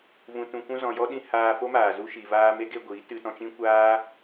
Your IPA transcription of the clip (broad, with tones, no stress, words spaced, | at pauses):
vũ˨tũ˨kʷũ˧ zɔ̃˨jɔ˦ɗĩ˧ haː˧fo˦maː˨ zu˧ʃi˨vaː˧ me˦ɡe˧ɡʷiː˨˦ tɨ˧tɔ̃˧t͡ʃĩ˦ kʷaː˦